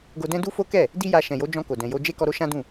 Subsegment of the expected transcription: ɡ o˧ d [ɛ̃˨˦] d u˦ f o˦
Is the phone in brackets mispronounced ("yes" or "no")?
yes